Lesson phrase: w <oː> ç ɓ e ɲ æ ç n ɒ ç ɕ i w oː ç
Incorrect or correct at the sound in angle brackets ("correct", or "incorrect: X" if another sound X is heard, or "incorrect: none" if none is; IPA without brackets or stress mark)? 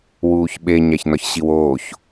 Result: incorrect: uː